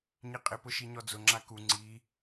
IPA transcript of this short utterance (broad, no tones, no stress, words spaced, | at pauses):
ɲiqʼɪpʊ ʃiɲɔd͡zʊ ŋ͡ǁaku ŋ͡ǀi